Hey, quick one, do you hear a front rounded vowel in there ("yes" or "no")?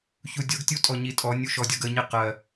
no